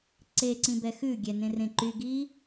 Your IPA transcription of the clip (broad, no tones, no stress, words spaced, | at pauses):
ǀeǀĩbɛ xʉɡʲɛnẽrẽ ǃyɡi